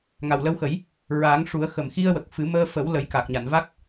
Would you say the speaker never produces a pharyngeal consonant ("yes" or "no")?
yes